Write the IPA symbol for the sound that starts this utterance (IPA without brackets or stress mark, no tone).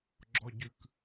ɡ͡ǁ